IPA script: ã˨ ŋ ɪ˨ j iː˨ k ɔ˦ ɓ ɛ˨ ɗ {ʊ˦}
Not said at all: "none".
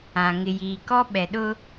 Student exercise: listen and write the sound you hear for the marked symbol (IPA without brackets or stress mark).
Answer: ʊ˦